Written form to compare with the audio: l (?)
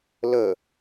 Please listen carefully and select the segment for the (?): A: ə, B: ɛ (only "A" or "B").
A